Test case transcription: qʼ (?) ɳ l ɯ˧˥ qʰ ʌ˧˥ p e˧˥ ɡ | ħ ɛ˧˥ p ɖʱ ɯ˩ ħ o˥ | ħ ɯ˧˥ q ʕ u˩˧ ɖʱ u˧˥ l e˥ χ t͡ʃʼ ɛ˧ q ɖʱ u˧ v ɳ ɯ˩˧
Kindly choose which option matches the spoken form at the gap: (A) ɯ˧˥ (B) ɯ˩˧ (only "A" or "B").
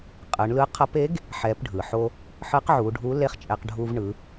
B